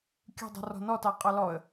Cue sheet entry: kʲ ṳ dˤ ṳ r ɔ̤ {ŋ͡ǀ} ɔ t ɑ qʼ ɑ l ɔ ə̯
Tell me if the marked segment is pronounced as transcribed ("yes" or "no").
no